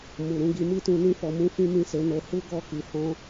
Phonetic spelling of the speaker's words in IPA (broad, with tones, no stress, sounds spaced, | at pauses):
m u˨ ɾ ũ˨˦ ɡ i˧ m i˦ t ũ˧ n ĩ˦ f ɔ˧ m ũ˦ f ĩ˦ m ĩ˦˨ s e˨˦ n o˧ h u˦ ɡ ɔ˦˨ k i˨ h ɔ̃˧